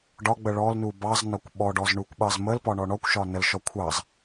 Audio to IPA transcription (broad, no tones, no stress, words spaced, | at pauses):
ɖɒɡ͡bə ɭɔlnu bɑznɒkʷ ɓɔɖɔzɳukʷɓɑz məlpɒɳɔ ɳɔkʷʃɒ nəlʃɔ kʷʰɑz